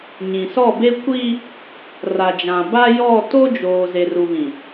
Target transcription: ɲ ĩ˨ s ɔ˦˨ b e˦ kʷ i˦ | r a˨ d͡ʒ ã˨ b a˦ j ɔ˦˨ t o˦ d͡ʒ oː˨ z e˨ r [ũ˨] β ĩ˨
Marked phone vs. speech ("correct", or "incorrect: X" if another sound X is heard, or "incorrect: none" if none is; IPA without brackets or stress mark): incorrect: u˨